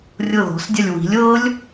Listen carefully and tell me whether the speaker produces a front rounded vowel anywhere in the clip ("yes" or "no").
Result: no